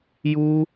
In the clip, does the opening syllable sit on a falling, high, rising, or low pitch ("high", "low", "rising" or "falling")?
high